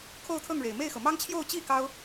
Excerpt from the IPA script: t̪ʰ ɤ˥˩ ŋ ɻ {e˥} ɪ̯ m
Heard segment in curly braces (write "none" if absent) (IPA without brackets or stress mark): e˨˩